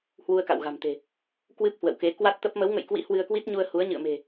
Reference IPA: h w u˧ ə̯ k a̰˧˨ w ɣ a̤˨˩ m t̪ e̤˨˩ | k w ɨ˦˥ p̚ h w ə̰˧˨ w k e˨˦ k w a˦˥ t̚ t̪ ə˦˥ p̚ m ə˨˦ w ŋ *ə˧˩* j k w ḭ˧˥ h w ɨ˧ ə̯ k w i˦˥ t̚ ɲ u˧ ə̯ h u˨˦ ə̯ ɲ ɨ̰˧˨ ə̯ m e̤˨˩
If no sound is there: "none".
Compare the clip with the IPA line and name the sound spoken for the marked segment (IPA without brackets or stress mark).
ə̰˧˨